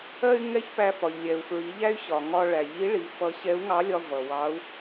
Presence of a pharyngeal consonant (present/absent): absent